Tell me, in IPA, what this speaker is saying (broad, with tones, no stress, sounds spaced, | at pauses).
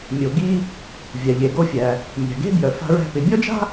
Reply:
mʲ o˩ ɡ i˧ | vʲ a˩ ʎ e˩ ɡ o˧ fʲ æ˩ | mʲ æ̤˩ ɡ e̤˥ b j œ˩ f a̤˧ ɹ æ̤˧ p ɪ˩ bʲ ɔ˥ d͡ʒ a̤˥